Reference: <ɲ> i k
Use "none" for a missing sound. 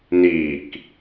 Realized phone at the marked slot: n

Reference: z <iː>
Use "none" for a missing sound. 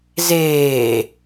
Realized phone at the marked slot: eː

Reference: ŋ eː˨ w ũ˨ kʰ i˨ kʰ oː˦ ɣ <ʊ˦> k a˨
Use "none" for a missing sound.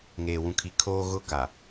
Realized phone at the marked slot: ʊ˦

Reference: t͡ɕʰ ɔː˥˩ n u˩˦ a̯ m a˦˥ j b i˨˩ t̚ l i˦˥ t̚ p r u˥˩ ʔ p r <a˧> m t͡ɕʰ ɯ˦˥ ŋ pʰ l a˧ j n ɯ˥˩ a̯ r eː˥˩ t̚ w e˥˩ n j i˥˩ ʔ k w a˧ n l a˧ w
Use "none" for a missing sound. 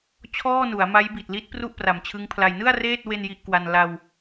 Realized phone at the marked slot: a˨˩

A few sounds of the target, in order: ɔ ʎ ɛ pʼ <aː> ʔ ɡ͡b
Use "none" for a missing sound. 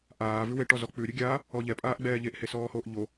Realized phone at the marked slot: aː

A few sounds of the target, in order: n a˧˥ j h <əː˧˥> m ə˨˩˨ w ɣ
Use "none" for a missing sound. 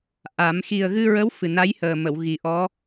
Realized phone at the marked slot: əː˨˩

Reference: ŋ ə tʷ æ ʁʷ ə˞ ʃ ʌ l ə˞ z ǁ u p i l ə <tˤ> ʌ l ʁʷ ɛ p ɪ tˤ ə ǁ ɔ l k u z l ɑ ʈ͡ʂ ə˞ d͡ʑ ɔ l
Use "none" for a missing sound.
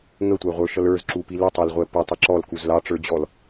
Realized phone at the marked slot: tˤ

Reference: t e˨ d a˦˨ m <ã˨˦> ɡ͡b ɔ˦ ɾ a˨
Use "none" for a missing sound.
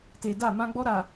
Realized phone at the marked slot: ã˦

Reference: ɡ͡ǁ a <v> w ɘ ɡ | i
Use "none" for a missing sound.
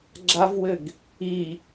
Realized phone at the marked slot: v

